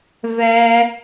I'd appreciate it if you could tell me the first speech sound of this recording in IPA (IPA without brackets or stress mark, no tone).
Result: v